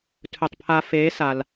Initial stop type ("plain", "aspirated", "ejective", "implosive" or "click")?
aspirated